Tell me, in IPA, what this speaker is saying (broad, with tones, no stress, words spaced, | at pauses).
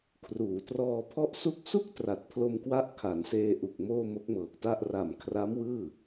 kʰruː˩˦trɔː˧pʰɔ˥˩ʔsu˥˩k̚ su˥˩k̚tra˨˩t̚ pʰlo˧mkwa˦˥ʔ kʰa˩˦nseː˧ʔu˨˩k̚ moː˥˩mo˦˥k̚mɤː˨˩k̚ta˥˩ʔ ra˨˩mkʰra˦˥m wɯː˥˩